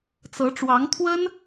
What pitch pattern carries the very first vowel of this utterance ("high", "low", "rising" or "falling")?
rising